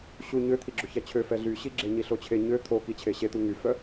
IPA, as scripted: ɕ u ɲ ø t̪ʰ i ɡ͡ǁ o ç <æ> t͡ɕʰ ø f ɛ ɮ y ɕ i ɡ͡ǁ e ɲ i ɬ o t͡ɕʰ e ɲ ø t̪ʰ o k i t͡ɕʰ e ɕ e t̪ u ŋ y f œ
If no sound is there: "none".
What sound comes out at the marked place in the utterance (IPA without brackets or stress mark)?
æ